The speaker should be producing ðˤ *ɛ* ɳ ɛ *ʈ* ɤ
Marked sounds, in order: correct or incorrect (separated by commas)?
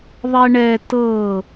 correct, incorrect